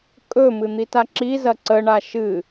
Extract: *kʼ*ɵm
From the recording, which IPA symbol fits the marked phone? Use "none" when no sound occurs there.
kʼ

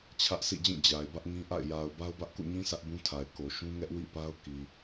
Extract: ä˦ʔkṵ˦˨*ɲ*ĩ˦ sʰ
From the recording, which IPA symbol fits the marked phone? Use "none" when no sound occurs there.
ɲ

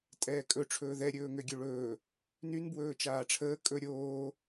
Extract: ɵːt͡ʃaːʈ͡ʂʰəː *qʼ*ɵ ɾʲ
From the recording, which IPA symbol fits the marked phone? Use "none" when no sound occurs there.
kʼ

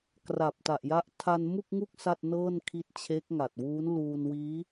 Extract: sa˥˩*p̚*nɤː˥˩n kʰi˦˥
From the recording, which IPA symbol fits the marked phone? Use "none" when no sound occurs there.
t̚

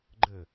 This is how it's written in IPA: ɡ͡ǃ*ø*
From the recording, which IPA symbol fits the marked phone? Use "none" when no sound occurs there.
ɘ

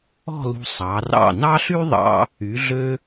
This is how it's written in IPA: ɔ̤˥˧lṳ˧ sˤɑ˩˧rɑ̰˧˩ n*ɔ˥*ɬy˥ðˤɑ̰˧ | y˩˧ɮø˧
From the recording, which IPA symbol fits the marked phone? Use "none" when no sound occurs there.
ɑ˥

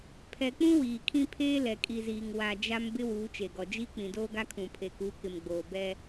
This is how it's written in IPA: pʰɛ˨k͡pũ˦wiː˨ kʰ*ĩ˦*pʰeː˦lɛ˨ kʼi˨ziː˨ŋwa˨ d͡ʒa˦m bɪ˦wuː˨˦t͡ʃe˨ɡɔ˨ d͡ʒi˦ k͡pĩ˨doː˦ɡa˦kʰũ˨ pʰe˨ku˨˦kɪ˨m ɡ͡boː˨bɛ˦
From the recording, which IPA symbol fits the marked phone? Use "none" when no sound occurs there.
ĩ˦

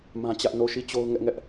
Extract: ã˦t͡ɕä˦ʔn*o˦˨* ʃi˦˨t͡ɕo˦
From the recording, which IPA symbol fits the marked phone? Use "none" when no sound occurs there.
o˦˨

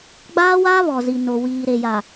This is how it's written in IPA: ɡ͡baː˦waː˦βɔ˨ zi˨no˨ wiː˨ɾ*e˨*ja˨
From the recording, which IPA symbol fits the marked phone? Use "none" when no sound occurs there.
e˨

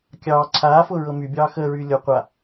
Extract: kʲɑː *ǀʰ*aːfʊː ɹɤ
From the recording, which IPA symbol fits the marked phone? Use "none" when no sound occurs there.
ǀʰ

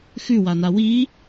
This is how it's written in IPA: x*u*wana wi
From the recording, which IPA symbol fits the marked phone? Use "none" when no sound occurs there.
ʉ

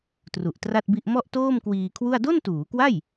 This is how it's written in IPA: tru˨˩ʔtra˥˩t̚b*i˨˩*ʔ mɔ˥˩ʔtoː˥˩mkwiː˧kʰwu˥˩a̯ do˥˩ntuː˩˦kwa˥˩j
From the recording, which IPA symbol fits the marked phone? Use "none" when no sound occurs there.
i˥˩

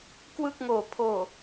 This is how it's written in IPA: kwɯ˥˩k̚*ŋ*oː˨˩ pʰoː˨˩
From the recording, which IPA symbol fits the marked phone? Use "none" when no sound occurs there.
ŋ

